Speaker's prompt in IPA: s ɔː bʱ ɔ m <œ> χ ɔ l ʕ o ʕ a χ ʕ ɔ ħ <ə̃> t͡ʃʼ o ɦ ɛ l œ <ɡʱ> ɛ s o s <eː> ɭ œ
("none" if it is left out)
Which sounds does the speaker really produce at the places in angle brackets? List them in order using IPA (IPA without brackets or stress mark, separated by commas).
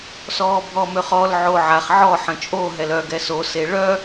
ø, ə̃, ɡ, e